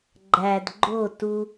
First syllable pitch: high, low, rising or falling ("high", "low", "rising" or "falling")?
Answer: low